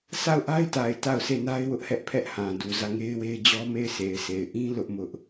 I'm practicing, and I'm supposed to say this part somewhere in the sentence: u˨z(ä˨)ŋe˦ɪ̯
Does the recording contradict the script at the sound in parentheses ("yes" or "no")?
yes